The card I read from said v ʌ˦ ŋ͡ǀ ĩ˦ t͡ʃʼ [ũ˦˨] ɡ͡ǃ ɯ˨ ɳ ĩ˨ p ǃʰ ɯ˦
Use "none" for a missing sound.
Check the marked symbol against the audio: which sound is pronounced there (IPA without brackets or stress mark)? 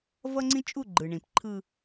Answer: u˦˨